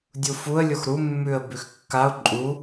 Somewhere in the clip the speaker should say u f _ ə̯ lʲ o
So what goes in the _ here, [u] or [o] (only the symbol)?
u